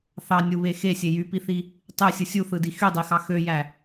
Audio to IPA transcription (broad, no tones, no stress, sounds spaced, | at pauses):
θ ɑ nʲ u β e x e sʲ e j y p i θ i | tˤ ø sʲ ɯ sʲ u θ ɯ d i x y dˤ i x ɑ x ø j æ